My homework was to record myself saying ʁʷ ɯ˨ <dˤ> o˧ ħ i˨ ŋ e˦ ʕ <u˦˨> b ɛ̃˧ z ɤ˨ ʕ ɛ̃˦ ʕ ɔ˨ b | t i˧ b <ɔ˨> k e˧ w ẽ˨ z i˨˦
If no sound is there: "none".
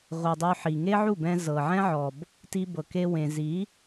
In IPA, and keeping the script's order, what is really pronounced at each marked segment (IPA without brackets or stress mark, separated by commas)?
dˤ, u˦˨, ɤ˨